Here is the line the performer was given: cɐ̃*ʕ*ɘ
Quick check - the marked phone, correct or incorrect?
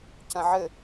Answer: correct